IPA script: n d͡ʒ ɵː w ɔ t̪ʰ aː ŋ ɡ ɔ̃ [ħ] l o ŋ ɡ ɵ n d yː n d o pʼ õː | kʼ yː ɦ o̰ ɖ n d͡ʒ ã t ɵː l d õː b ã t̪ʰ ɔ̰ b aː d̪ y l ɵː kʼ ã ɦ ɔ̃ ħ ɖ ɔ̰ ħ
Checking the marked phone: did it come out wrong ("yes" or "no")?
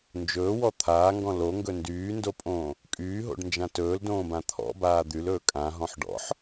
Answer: yes